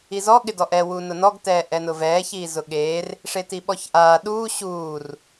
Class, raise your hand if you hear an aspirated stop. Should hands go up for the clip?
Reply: no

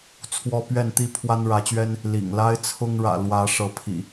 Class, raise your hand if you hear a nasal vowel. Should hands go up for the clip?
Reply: no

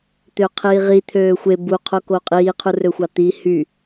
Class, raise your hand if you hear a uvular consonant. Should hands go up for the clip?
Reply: yes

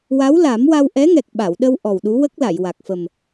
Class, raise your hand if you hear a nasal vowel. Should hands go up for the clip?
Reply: no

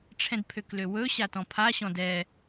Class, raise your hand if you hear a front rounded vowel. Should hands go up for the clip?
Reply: yes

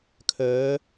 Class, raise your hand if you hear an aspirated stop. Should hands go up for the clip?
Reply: yes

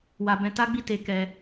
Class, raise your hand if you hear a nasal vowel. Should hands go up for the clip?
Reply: yes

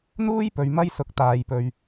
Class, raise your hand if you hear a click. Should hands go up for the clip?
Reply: no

